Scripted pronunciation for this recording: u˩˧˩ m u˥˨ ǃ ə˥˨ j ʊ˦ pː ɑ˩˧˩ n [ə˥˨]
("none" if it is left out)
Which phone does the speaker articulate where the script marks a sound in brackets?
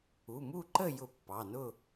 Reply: ʊ˥˨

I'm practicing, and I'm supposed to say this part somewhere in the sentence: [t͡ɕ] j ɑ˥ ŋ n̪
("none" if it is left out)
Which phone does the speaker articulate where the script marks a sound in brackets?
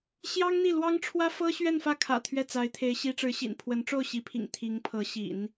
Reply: ɕ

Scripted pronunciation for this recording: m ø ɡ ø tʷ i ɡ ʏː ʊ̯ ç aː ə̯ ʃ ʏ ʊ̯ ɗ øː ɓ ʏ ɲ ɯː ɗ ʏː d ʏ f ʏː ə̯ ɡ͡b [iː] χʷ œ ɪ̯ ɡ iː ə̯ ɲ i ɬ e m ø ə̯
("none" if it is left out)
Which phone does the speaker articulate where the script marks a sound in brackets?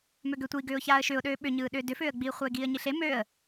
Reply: iː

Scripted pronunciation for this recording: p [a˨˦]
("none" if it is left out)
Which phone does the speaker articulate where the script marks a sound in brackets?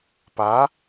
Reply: a˨˦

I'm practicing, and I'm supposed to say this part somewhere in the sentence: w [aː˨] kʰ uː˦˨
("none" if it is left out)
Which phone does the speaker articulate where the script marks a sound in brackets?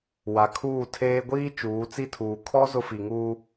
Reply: a˨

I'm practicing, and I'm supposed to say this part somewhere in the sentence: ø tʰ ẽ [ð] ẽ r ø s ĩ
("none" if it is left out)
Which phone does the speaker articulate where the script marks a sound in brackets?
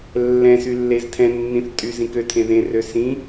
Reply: ð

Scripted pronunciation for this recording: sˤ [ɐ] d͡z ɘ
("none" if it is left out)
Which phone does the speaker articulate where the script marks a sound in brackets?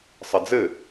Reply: ɐ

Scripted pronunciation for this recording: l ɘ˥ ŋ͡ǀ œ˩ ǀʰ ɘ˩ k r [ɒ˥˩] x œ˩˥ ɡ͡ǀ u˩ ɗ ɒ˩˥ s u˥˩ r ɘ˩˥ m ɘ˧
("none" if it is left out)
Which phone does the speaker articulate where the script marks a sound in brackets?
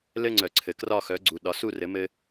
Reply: ɒ˥˩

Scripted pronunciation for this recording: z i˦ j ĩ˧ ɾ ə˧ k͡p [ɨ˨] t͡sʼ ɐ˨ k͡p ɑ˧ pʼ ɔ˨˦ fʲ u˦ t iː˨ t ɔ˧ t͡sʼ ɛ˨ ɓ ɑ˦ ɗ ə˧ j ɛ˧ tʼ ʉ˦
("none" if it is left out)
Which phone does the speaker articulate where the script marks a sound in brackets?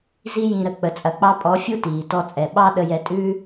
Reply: ə˨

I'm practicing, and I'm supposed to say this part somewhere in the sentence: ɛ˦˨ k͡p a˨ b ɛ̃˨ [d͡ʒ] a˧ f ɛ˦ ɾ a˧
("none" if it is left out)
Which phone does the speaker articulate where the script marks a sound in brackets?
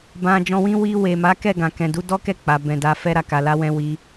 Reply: d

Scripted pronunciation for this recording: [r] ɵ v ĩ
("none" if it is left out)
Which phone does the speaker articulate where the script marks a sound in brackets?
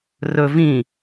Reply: r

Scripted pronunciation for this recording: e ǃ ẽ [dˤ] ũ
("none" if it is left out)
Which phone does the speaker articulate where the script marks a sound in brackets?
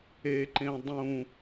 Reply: dˤ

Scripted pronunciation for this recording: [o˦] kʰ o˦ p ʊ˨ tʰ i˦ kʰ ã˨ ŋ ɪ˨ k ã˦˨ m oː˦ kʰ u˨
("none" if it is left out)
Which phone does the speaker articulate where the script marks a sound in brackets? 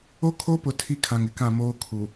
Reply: o˦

